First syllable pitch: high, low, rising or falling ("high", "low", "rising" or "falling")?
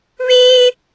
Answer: high